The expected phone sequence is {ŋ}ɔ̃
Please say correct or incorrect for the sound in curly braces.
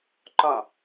incorrect: ǃ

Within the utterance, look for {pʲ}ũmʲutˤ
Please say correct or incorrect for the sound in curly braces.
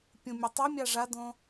correct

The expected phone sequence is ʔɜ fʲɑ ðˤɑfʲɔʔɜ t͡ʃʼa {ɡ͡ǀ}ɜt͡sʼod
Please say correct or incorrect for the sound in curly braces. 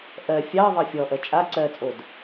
incorrect: ǀ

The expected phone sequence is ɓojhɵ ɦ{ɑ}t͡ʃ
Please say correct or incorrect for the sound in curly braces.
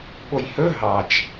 correct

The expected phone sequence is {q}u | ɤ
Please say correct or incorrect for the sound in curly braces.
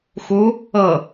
incorrect: x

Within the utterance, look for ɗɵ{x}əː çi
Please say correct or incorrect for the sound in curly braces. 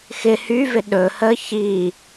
incorrect: h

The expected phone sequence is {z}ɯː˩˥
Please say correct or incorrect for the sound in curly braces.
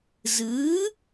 correct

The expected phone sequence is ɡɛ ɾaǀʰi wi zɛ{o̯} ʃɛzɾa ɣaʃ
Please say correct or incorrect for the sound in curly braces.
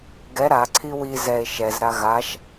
incorrect: e̯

